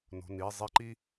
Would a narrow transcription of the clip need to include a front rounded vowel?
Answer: no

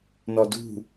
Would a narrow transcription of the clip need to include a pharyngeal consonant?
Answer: no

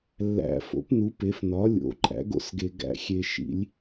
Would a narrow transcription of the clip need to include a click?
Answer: yes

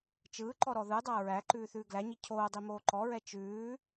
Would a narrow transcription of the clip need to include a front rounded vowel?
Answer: no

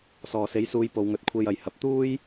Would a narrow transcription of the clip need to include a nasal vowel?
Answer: no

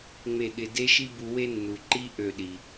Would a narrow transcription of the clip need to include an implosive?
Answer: yes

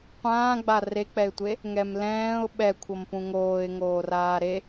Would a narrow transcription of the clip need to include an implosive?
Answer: yes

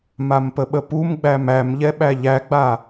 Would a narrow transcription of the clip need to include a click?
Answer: no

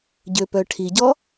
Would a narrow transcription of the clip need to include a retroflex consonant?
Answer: yes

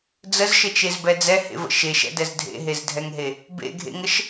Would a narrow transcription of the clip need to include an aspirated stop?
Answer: no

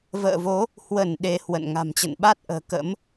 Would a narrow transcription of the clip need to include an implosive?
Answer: yes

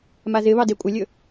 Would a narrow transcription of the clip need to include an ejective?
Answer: yes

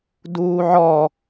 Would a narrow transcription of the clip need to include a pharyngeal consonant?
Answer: yes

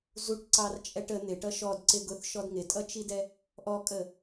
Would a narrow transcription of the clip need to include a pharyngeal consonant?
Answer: no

